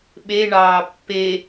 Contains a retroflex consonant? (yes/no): yes